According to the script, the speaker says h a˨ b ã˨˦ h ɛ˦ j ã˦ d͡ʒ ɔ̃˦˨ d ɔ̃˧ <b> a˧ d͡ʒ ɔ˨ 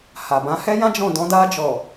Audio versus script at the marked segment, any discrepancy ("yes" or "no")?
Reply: yes